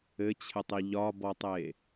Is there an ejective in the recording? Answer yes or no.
no